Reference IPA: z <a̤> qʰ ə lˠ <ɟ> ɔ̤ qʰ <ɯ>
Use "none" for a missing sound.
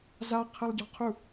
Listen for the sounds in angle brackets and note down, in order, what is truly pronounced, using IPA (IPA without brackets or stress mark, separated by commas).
a, ɟ, u